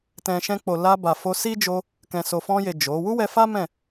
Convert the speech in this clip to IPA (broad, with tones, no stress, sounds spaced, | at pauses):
t ɛ̃˨ ʃ ɛ̃˧ k͡p o˨ l a˧ b a˨ f o˧ s i˦ d͡ʒ o˧ | k ɛ̃˨ s o˨ f ɔ̃˧ j e˨ d͡ʒ o˨˦ w u˦ w ɛ˧ f a˦ m ɛ̃˦˨